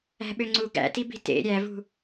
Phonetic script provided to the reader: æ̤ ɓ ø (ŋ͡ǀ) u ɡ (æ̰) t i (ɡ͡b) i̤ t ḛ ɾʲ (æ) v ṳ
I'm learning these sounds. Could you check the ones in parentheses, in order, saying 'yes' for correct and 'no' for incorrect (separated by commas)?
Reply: yes, yes, no, yes